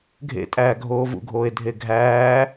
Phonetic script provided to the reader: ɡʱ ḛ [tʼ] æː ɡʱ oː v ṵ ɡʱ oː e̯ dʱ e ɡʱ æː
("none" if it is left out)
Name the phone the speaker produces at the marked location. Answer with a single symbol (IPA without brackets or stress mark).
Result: tʼ